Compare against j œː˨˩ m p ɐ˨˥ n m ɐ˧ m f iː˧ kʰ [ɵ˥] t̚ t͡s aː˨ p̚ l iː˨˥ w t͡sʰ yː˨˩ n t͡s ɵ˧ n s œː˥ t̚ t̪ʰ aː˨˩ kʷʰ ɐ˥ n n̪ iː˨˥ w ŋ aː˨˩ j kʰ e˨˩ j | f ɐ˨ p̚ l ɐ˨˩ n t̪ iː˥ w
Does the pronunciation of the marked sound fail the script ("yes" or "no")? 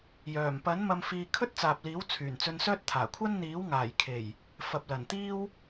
no